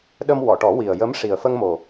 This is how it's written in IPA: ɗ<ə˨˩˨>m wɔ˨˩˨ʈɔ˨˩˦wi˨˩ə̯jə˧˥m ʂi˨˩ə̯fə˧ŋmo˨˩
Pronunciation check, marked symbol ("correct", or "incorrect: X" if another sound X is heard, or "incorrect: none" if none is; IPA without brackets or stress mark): incorrect: ə˧